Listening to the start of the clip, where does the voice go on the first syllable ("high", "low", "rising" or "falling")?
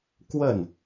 falling